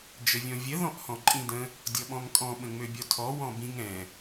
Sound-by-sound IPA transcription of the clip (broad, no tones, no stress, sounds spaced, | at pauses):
d͡ʒ ə vʲ ɔ̃ vʲ ə ð ɔ̃ ʔ h ɔ̃ ǃʼ ĩ d ə̃ | dʲ ɔ ɓ ɔ̃ ŋ kʼ ɔ̃ ɓ ə̃ ŋ͡m ø bʲ ɔ tʰ ɔ w ɔ̃ b ĩ ŋ ɛ̃